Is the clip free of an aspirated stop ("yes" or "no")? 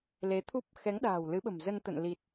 no